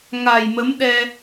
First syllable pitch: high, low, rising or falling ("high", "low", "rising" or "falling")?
low